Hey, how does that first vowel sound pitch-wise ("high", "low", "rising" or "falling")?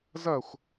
falling